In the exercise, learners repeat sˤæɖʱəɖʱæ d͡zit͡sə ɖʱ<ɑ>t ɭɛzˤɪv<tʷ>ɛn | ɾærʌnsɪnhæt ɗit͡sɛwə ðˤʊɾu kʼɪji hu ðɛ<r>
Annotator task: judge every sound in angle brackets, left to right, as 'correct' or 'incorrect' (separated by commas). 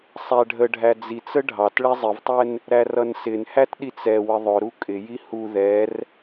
correct, incorrect, correct